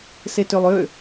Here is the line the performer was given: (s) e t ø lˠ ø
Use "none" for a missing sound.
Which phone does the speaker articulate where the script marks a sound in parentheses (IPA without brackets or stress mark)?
s